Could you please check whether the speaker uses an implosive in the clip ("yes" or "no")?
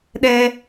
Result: yes